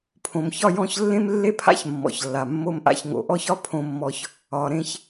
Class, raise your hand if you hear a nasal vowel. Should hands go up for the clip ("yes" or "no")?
yes